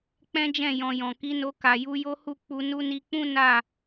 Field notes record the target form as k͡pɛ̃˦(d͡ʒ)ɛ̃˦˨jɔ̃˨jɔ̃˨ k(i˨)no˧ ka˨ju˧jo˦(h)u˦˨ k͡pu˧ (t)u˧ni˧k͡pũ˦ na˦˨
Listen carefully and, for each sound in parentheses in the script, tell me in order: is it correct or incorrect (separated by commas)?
correct, incorrect, correct, incorrect